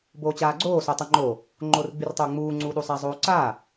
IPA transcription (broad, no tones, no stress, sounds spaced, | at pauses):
b oː t͡ɕ aː ɡ͡ǀ oː s o tˤ o ŋ͡ǃ oː | ŋ͡ǃ oː r ɡ͡b y r tˤ oː ŋ͡m uː ŋ͡ǀ uː ɗ u sˤ a zˤ oː ǀ aː